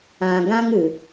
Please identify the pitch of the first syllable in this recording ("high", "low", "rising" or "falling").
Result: low